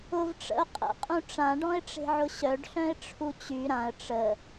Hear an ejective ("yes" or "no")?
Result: yes